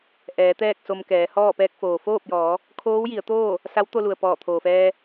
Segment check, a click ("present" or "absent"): absent